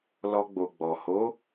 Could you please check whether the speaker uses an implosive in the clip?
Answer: no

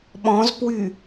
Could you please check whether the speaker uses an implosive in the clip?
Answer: yes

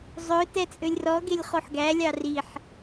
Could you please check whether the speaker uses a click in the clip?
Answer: no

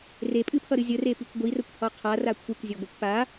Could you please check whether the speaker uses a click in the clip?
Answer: no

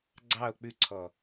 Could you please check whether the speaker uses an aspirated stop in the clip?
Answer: yes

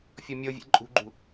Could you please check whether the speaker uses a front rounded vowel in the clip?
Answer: no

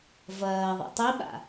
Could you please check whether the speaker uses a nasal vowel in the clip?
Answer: no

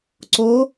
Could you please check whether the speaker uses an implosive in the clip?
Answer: no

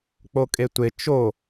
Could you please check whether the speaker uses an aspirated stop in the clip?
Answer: no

